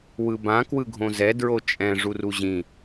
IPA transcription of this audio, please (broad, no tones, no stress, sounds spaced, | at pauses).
w ɯ b ã k w ɯ ɡʱ õ z ɛ d ɹ o t͡ʃʼ ɛ̃ ʐ u r u ʑ ĩ